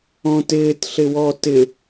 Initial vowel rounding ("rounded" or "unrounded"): rounded